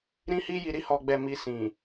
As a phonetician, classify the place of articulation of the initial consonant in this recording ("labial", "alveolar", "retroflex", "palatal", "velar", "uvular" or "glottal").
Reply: alveolar